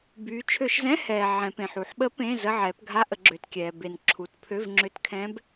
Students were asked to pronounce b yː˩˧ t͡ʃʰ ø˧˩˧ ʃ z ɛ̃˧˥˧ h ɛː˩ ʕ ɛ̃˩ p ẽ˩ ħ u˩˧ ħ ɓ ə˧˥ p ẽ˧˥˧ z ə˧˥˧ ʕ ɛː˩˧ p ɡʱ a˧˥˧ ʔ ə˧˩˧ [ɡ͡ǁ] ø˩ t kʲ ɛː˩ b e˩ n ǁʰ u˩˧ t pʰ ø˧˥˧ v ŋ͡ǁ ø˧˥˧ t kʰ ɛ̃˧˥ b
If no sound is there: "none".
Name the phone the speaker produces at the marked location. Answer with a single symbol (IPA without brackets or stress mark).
ɡ͡ǁ